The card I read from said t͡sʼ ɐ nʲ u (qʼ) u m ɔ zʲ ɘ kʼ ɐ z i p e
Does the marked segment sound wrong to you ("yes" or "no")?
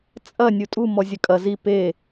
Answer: yes